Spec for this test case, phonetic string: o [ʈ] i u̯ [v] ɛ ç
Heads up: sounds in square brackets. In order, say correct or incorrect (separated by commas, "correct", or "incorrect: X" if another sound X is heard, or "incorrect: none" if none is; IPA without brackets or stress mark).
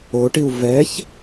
correct, correct